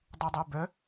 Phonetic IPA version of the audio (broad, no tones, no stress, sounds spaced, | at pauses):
dˤ u dˤ œ b œ